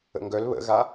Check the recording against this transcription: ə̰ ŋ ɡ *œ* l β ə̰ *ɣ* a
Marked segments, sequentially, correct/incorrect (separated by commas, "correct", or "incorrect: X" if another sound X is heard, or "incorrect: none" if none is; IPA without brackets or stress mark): correct, correct